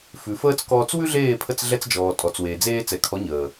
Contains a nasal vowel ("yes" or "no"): no